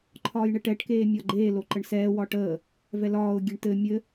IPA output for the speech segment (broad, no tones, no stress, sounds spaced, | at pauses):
ǃʰ ɒː j ɳ e ʈ ɛ ʈ k eː mʲ ɒ ɡ͡ǃ eː l o ǃ ə ɳ s ɛː w ɒ ʈ əː | v ɛ l ɒː ʊ̯ ɡʲ e ɳ t ɘ mʲ ɘ